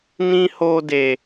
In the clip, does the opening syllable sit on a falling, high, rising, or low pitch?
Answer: high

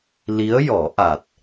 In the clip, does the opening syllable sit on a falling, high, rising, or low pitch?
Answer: rising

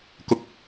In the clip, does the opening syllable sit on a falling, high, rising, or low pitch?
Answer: low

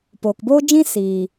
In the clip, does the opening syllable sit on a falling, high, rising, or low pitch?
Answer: low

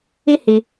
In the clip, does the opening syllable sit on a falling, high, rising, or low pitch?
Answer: high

